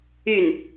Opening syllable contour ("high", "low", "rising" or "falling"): falling